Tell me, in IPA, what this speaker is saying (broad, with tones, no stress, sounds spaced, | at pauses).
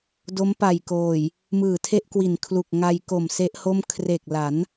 d o˦˥ m p a˨˩ j k oː˨˩ j | m ɯː˨˩ tʰ e˥˩ ʔ k w i˨˩ n kʰ l u˨˩ k̚ ŋ a˧ j k o˨˩ m s e˦˥ ʔ h o˥˩ m kʰ r e˨˩ k̚ l a˩˦ n